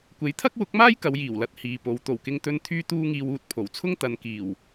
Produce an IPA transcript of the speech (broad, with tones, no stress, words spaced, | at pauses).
kʷe˨˥jt̪ʰɐ˥k̚wʊ˨˥k̚maː˥j kɐ˨˧wjiː˨˩wlɐ˧t̚ hiː˨po˨˧w t̪o˨˩wkɪ˧ŋt̪ɵ˧n t̪ʰyː˥t̪uː˥ŋiː˧w uː˧t̚pʰo˨˩wt͡sʰʊ˥ŋ t̪ɐ˨˧nkiː˨˩w